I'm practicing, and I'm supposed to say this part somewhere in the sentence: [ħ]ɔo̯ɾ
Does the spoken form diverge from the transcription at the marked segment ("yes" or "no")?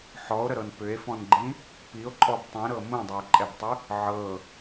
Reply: no